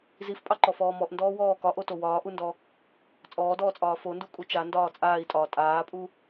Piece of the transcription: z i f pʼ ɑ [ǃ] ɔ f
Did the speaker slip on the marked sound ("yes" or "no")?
no